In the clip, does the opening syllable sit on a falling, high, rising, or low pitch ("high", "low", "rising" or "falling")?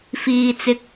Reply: high